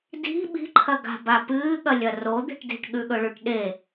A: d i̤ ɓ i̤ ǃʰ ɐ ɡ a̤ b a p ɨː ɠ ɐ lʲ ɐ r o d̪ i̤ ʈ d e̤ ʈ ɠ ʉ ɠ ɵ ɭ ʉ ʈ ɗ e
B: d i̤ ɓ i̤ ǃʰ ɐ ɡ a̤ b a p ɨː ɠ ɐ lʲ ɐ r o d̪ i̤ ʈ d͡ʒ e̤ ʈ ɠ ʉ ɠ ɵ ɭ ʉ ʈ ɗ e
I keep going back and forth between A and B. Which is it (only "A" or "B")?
A